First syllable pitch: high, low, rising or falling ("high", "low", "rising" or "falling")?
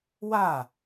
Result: falling